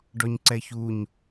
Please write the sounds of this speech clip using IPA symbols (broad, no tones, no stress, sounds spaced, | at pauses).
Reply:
ɖ ɔ ɲ ǀ ɛ ç u ɲ